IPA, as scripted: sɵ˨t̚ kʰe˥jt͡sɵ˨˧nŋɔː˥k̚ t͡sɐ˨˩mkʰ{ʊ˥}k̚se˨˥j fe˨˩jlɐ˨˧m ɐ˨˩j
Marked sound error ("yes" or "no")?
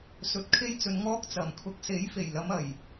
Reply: yes